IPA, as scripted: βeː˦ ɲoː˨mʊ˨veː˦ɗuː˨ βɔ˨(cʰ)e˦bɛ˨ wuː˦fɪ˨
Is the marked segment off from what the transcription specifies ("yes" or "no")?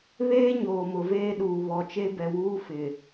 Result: yes